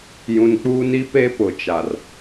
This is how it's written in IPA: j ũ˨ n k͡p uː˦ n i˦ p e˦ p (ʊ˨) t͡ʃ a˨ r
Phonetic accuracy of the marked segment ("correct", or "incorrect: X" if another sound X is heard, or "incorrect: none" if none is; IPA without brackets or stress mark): correct